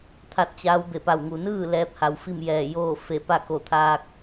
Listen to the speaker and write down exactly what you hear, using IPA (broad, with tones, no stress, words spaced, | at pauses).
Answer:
t̪ʰa˥˨t̚t͡ɕa˧˥w be˧˩pa˧˩wŋu˩ nɯː˥˨ lɛː˧˥p̚ha˩˧w fi˥˨mjɛː˧˩joː˥˨fe˧˩ pa˥˨ko˧˩t̪ʰaː˧k̚